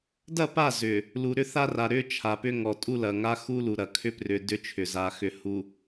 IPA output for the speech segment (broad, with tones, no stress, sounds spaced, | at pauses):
d ɐ˦˨ p a˦˨ z ʏ˨ | l u˨ ɾ ʏ˦ θ a˦ r a˨ ɾ ʏ˦ t͡ʃʰ a˨ p ʏ˦ ŋ ɔ˨ tʼ u˦ l ɐ˨ ŋ a˦ x u˦ l u˨ ɾ ɐ˨ kʰ ʏ˦ p r ʏ˨ d ʏ˦ t͡ʃʰ ʏ˨ z a˨ x ʏ˨ h u˨